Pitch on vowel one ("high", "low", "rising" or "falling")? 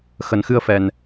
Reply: low